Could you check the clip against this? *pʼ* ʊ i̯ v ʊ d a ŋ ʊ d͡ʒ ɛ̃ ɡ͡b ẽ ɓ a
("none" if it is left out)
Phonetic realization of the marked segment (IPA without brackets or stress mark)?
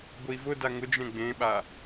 b